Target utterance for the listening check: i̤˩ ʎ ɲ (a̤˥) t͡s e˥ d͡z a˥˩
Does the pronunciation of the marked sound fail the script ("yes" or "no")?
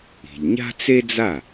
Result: no